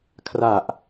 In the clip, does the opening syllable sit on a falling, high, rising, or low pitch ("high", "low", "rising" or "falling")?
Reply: low